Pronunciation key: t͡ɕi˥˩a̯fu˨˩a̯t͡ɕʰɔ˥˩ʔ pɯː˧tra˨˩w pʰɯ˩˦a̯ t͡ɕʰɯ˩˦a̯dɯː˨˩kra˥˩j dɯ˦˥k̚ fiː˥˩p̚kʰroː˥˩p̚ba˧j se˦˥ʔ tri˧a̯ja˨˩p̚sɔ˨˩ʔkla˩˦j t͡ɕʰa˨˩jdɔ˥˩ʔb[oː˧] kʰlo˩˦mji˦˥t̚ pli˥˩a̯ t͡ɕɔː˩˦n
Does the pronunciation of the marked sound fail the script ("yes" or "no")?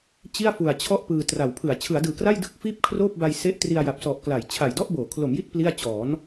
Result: yes